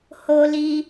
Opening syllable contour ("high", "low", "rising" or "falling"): high